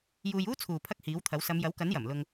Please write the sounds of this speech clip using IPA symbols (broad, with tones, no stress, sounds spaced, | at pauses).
j uː˧ j uː˥ t͡sʰ uː˨ pʰ ɐ˥ k̚ h iː˨˥ w t̪ʰ ɐ˨˥ w s ɐ˨˧ m j ɐ˨˥ w k ɐ˨˥ n j ɐ˨˩ m l ʊ˧ ŋ